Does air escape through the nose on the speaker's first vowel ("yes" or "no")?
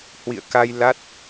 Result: no